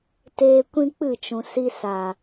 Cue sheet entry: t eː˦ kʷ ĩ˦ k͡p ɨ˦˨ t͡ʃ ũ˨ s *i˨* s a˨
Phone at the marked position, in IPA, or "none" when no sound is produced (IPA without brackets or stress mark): i˧